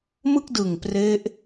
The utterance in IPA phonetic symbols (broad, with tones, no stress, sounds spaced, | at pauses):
m ɯ˥˩ k̚ d ɯ˨˩ ŋ p r e˦˥ ʔ